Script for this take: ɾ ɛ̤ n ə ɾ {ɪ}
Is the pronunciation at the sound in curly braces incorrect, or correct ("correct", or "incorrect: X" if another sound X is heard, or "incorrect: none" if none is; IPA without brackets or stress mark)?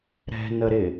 correct